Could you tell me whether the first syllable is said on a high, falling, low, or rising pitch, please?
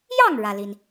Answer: falling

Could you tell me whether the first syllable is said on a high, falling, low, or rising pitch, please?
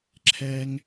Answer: high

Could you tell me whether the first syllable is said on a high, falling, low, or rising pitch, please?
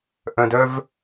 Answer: low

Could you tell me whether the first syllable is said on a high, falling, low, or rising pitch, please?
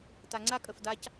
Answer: low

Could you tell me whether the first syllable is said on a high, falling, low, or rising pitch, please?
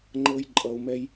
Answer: high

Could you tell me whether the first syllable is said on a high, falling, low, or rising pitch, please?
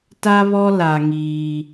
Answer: high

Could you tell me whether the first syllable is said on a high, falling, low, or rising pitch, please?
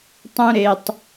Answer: high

